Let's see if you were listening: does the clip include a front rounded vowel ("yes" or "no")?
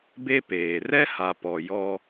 no